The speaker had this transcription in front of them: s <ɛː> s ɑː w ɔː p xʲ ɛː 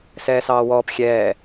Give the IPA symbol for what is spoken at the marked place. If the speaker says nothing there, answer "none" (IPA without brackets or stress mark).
ɛː